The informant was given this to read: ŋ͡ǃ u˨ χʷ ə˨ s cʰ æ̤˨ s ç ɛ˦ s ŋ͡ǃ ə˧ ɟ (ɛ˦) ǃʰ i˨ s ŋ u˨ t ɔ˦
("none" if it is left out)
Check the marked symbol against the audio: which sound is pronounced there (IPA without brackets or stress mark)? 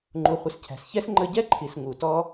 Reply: ɛ˦